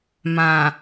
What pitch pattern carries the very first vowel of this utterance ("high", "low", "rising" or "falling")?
low